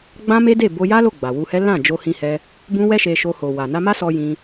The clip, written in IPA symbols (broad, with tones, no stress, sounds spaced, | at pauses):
ɡ͡b ã˦ m e˦ d e˦˨ b o˧ j a˦ l o˦˨ ɡ͡b a˨ w u˧ h ɛ˦ l ã˦˨ d͡ʒ o˧ h ĩ˦ h ɛ˦ | b ũ˦ w ɛ˦ ʃ e˧ ʃ o˧ h o˨ w a˨ n a˧ m a˦ s ɔ˧ j ĩ˦